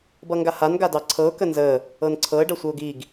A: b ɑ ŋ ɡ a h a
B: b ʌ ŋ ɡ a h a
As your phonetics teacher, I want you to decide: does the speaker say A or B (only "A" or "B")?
B